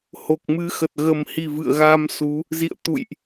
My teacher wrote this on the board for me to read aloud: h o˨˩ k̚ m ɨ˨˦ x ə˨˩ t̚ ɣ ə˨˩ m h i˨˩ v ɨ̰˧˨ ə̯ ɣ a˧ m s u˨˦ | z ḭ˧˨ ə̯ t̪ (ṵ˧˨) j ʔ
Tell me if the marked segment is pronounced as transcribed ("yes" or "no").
yes